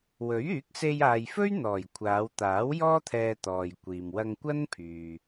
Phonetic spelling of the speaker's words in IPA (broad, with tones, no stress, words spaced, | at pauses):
wɵ˨˥ɥ yː˨˥k̚se˧jaː˨j fɵ˥ɥn̪ɔː˨˩j kʷʰaː˨˧wt̪aː˨˥wjɔː˥ t̪ʰɛː˧t̪ɔː˨jkʷiː˨m wɐ˧ŋkʷɐ˥npʰyː˨